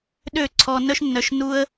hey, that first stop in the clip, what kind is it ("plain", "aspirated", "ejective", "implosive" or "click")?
implosive